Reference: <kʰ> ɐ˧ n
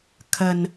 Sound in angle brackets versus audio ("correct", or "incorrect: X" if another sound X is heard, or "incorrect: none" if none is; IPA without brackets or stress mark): correct